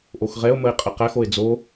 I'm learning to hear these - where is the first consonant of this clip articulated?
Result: throat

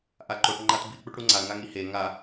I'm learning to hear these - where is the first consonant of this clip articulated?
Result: throat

